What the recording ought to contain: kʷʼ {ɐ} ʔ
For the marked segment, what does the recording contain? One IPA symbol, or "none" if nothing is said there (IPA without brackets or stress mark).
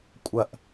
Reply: ɐ